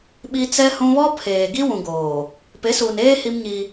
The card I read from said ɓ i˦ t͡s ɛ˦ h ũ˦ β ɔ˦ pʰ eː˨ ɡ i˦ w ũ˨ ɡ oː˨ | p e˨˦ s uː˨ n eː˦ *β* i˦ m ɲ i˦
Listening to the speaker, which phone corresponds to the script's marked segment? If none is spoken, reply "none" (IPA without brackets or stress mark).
h